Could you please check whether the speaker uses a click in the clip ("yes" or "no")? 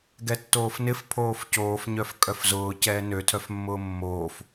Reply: no